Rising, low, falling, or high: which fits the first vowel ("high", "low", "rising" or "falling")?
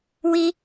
high